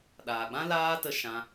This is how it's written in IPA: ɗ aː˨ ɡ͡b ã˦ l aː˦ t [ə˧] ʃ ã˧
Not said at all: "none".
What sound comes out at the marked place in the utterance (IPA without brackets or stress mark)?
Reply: ə˧